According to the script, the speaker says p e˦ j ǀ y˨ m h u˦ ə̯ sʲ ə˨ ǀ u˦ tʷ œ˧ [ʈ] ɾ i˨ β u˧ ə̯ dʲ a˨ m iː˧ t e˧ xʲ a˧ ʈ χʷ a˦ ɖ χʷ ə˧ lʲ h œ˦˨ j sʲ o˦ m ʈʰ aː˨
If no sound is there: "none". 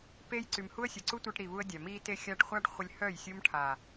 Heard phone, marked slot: ʈ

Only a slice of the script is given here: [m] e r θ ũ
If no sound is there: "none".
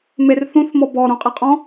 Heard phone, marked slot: m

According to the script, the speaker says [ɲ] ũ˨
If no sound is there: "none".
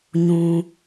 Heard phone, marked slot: ɲ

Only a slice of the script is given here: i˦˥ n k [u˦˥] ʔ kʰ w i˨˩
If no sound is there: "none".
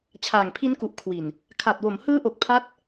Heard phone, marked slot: u˨˩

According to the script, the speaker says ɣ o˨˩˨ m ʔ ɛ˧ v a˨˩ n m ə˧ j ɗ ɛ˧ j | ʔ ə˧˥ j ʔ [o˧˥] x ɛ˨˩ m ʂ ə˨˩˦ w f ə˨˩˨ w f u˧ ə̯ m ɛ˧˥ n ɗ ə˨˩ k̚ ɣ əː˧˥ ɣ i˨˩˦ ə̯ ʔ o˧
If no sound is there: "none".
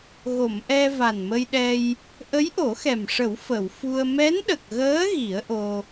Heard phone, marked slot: o˨˩˦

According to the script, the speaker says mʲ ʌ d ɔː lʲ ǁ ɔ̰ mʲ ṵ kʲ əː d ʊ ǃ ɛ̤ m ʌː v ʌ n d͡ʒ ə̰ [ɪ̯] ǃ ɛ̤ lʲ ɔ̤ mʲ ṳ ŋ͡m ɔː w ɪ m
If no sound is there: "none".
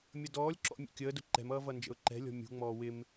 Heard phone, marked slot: ʊ̯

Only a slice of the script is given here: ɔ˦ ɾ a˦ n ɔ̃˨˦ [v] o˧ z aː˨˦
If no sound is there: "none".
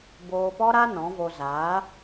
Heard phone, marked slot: v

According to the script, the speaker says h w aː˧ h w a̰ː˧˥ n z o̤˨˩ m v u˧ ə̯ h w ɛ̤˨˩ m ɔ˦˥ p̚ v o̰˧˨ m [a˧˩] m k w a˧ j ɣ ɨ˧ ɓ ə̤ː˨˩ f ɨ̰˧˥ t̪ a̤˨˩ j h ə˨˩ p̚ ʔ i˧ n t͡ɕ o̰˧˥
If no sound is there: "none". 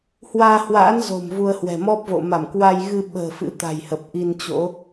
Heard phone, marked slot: a˧˩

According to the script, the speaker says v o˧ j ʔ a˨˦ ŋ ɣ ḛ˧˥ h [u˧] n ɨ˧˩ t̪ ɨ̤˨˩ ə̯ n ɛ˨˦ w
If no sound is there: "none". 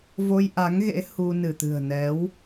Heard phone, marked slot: u˧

